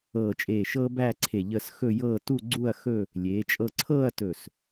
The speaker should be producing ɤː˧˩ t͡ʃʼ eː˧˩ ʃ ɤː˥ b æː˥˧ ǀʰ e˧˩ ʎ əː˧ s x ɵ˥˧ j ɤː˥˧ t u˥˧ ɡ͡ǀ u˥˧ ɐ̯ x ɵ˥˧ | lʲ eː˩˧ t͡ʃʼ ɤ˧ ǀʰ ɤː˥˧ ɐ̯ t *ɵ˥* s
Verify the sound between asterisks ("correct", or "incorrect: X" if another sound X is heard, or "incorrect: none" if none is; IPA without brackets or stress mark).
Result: incorrect: ɵ˧˩